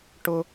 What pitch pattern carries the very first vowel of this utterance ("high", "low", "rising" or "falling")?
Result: high